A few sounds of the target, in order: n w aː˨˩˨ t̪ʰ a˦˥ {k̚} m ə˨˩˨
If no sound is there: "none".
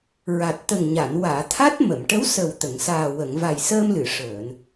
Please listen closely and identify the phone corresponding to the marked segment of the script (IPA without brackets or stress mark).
t̚